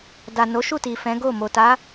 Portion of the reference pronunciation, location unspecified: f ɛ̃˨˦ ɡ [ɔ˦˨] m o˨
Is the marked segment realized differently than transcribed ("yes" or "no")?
yes